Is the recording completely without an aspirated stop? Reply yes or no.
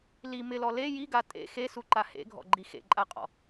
yes